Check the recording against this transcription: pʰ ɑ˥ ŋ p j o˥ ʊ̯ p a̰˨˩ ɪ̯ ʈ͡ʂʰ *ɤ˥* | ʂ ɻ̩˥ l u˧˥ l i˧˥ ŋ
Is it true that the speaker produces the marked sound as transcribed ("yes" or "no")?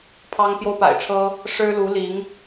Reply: yes